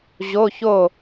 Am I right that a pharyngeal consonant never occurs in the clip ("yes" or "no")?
yes